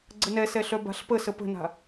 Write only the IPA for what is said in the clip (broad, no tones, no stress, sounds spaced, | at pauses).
ɡ͡ǀ ə n ɛ s ɛ ɬ œ b a̤ ɬ p ə s ə p ə̤ n a̤